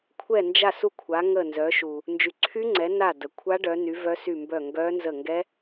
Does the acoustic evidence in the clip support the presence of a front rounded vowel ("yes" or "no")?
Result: yes